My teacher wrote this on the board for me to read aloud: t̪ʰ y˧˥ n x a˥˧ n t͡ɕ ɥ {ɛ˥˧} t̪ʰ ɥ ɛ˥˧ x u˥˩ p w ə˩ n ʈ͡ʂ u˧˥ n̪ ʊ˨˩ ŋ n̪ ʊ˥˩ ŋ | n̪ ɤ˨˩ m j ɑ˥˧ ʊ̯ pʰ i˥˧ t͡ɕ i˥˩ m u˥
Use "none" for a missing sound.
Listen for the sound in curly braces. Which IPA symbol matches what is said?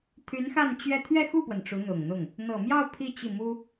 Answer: ɛ˥˧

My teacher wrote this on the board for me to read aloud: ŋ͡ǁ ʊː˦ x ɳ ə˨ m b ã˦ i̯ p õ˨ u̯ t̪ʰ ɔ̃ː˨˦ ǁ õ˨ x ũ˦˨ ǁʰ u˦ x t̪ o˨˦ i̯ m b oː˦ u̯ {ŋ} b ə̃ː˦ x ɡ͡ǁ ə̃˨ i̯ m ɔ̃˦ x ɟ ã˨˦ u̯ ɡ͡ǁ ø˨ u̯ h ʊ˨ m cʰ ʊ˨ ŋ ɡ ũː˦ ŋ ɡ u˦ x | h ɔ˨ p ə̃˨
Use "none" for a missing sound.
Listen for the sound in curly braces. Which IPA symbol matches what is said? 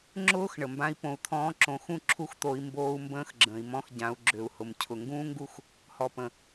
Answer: m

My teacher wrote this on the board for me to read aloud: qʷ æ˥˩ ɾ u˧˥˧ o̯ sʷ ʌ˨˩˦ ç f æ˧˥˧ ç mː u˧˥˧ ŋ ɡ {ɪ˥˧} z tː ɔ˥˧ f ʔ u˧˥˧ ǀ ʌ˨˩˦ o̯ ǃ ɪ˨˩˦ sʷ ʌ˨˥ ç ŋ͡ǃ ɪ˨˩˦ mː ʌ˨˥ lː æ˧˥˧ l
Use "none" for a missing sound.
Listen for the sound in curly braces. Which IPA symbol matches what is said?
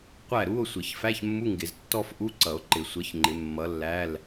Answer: ɪ˨˩˦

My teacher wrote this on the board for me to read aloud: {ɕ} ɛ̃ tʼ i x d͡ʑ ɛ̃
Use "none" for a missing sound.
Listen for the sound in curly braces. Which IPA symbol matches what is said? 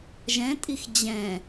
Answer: ʒ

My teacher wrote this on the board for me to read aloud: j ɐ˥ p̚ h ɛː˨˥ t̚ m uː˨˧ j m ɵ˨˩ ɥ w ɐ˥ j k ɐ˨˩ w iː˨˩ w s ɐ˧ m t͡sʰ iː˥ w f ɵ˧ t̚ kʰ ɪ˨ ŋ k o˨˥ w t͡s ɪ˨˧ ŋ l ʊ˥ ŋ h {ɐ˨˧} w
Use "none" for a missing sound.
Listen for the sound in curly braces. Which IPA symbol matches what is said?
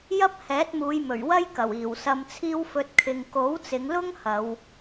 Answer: ɐ˨˧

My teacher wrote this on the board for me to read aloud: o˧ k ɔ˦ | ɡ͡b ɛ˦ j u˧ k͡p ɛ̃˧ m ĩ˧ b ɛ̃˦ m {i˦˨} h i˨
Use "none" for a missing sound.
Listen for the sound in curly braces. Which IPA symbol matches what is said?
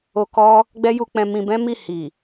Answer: i˦˨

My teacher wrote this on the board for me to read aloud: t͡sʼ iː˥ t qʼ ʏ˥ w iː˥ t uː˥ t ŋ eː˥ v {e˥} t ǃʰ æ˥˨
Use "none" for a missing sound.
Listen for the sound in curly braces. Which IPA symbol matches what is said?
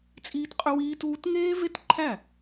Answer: e˥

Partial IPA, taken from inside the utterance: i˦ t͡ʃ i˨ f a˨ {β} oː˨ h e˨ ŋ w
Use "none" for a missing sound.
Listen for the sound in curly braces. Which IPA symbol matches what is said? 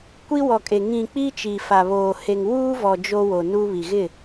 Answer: β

